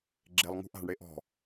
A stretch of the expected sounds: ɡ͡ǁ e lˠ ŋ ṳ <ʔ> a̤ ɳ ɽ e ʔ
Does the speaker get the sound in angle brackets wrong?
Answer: no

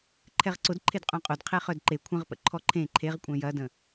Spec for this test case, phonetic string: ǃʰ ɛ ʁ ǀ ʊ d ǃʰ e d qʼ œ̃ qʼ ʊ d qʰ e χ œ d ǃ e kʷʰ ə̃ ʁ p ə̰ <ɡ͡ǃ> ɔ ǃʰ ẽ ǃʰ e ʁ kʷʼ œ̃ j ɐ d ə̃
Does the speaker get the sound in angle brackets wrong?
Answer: yes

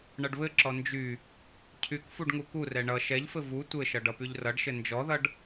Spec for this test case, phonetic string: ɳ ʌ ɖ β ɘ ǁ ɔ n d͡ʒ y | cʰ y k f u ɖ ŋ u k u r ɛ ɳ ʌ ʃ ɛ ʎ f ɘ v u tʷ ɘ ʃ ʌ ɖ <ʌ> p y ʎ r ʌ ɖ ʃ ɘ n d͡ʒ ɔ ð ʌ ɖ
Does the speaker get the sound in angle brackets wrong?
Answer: no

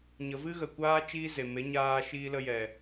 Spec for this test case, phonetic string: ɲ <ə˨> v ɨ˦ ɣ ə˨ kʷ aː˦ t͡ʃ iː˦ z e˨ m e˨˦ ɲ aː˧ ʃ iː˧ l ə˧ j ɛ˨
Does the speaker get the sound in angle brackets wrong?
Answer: no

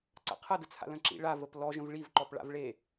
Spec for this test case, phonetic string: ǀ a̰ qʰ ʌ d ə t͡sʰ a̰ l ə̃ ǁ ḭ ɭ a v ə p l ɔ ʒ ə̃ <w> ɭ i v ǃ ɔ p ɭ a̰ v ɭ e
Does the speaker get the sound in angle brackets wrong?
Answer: yes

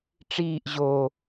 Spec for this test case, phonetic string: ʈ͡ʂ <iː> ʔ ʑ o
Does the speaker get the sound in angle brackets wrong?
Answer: no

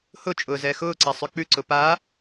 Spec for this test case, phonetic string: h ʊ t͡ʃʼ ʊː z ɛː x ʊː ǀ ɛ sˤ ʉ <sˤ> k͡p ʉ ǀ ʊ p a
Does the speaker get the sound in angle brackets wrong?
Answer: yes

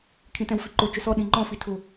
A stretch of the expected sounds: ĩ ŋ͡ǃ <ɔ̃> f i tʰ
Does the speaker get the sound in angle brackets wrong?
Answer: no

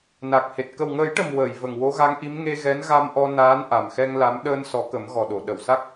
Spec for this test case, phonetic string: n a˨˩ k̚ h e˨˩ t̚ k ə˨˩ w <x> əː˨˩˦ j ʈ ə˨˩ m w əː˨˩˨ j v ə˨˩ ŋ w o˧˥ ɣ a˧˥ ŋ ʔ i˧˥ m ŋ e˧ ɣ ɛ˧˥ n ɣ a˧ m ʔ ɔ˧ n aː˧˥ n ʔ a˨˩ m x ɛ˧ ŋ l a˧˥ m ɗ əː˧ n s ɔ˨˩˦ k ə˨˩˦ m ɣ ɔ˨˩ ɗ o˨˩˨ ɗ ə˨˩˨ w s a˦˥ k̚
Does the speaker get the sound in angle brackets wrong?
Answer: yes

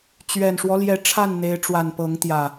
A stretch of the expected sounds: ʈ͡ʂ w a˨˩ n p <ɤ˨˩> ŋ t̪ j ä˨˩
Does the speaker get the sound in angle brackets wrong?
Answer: yes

